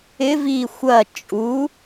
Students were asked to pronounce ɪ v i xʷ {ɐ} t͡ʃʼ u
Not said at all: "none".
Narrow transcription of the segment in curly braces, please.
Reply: ɐ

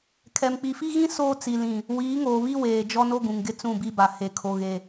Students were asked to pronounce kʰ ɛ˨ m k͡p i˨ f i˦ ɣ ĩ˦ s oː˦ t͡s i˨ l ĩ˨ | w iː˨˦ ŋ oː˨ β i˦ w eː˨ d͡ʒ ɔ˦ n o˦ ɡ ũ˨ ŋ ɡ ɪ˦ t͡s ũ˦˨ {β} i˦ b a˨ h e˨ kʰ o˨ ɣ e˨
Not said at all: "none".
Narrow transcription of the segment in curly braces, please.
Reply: b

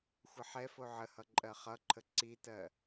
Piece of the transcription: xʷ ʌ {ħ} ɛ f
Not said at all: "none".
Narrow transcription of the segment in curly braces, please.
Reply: ħ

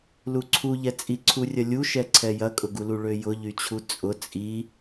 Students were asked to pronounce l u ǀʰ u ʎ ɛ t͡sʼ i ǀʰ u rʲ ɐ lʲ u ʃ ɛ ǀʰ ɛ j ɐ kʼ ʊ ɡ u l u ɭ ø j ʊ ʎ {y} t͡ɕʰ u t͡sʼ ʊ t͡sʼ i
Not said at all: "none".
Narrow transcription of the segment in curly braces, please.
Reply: y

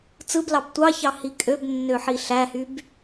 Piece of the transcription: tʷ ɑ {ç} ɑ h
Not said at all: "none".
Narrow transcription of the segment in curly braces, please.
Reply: ç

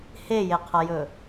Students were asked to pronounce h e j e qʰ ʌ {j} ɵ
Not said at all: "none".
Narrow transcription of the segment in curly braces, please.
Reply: j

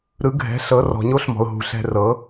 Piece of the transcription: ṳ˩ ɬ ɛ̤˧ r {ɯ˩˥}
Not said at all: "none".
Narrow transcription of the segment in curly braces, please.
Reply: ɤ˩˥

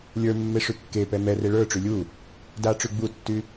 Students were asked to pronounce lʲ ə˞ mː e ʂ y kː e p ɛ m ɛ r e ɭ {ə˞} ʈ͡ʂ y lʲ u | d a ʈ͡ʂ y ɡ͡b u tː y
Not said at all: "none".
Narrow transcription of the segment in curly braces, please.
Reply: ə˞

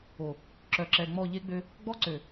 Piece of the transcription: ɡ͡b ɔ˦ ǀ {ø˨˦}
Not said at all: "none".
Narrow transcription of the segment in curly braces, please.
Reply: ø˨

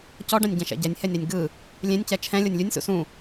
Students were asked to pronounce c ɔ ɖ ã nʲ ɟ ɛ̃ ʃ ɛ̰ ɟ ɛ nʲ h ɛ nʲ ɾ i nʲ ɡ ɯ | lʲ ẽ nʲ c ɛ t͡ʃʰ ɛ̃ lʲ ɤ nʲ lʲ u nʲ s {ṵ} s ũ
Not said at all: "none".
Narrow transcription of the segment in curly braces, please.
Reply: ṵ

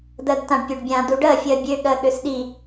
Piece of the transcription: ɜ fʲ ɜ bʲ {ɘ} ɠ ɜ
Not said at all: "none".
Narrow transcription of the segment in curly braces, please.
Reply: ø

